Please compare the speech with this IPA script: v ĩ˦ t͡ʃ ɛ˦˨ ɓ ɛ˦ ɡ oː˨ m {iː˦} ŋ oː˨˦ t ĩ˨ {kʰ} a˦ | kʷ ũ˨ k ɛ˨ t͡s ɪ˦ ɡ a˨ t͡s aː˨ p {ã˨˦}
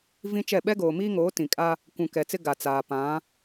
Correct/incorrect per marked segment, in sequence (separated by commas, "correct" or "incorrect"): correct, incorrect, correct